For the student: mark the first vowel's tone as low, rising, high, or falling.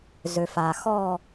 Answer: low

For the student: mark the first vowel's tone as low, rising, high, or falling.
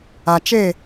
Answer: low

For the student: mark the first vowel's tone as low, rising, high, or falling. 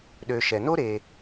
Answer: low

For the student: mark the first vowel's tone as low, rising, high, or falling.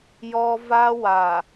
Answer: high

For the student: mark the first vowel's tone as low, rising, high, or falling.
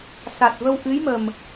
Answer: low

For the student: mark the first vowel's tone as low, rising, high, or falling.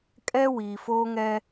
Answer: high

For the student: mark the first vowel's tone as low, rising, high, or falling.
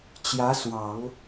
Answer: rising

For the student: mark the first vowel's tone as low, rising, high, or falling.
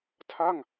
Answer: falling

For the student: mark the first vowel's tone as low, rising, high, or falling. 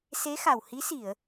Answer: rising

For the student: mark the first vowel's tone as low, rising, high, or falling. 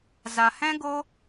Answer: low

